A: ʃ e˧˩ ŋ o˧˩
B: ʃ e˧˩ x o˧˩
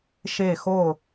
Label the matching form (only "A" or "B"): B